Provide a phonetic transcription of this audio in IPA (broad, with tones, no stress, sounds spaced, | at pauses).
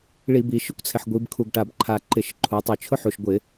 ɭ i˧˩˧ b i˩˧ ʃ ʊ˦˥ kʷ t͡sʰ ɪ˨˩ ħ ɡʷ i˩˧ b kʰ u˨˩ ɡ ʈ a˨˩ b ǃʰ a˨˩ ǃ ɪ˧˩˧ ʃ ǃʰ u˩˧ tˤ ʊ˧˩˧ t͡ʃʰ ʊ˦˥ ħ u˨˩ ʃ ɡʷ ɪ˧˩˧